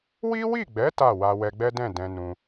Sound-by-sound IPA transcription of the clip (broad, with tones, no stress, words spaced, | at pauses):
wi˦wi˦˨ɡ͡bɛ˨˦ ta˦˨ wa˧wɛ˧ɡ͡bɛ˦dɛ̃˦˨ dɛ̃˧nũ˧